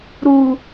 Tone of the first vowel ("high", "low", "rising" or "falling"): low